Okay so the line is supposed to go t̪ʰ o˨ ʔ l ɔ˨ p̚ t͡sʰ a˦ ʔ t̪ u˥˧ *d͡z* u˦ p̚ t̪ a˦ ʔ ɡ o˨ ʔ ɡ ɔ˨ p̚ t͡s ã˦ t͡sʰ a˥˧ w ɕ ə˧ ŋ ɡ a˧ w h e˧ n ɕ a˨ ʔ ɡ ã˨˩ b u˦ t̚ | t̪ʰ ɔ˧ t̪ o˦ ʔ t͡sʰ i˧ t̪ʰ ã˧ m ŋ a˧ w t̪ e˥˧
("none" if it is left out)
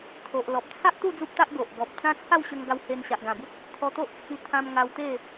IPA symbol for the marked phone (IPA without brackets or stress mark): d͡z